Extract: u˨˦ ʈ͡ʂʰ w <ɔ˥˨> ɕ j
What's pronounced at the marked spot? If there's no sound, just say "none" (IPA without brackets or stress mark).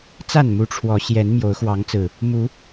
ɔ˨˦